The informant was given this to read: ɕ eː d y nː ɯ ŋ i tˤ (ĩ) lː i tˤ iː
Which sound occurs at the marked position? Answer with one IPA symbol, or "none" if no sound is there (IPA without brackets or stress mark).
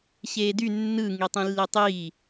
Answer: ĩ